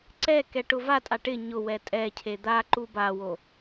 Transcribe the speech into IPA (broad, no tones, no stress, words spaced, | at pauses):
ǀɛ kɛʈʊvatʼa ʈɪ ɲʊ wɛtʼɛcʰe d̪a ǃubawo